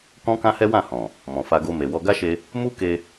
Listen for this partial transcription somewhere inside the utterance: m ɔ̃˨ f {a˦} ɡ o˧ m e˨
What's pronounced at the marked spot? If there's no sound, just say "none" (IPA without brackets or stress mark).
a˧